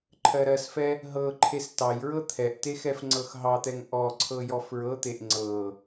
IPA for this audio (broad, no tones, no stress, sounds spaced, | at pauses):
ǃʰ ɜ ɾ ɜ s f ɛ | ɦ ɤ ǃʰ e s t ɑ j ɹ ɤ t̪ʰ ɛ ʔ t e x ɛ f ŋ͡ǀ ɤ x ɦ ɑ t̪ ɛ ŋ ʔ ɔ ǀʰ ɤ j ɔ f ɹ ɤ t̪ e ʔ ŋ͡ǀ ɤ